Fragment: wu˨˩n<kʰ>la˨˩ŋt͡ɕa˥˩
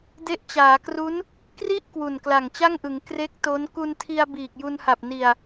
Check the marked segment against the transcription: incorrect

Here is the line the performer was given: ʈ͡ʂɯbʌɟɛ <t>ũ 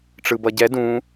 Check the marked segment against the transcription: incorrect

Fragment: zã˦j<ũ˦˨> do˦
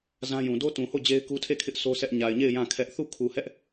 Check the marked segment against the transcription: incorrect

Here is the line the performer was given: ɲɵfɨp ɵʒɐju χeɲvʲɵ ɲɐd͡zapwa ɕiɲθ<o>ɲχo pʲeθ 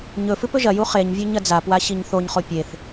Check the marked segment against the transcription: correct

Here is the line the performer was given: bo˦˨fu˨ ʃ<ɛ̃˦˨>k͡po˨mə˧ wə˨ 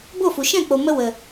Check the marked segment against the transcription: correct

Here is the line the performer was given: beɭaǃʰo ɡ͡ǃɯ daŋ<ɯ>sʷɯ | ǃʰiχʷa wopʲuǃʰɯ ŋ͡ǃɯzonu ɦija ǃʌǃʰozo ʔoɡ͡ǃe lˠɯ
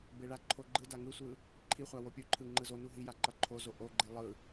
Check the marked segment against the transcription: correct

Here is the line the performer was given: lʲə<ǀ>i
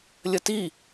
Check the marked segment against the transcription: incorrect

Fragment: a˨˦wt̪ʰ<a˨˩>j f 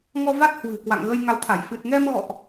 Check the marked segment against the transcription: incorrect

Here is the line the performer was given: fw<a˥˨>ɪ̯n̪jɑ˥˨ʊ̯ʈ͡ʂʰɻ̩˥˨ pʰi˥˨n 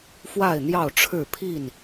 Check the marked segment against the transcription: correct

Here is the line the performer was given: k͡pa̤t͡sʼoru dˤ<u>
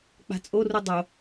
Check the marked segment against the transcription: incorrect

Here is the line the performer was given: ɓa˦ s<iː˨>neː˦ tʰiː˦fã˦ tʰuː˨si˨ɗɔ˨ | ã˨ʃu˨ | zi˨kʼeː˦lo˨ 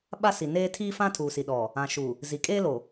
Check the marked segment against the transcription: incorrect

